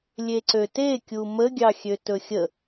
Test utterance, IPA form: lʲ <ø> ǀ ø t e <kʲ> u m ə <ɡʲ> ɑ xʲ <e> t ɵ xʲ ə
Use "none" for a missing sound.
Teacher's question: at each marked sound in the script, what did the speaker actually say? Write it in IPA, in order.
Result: e, kʲ, ɡʲ, ø

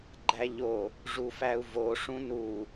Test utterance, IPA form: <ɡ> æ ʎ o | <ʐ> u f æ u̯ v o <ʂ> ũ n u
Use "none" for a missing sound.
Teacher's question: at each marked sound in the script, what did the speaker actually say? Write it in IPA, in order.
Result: ɡ͡ǃ, ʐ, ʂ

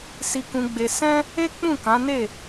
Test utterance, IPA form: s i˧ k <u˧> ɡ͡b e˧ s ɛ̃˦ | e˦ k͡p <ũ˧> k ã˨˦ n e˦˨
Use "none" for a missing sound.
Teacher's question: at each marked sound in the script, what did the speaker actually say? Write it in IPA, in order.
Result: ũ˧, ũ˦˨

